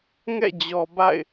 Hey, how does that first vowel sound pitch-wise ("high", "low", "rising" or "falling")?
falling